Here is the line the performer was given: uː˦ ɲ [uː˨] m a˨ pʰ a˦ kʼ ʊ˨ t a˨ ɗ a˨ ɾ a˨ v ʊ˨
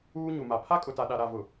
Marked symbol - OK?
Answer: no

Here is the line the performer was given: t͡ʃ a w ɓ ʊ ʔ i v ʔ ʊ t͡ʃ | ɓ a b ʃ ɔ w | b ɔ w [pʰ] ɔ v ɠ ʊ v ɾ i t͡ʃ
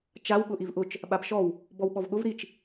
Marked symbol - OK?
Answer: no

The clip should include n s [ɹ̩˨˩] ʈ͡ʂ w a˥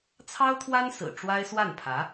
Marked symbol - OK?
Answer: yes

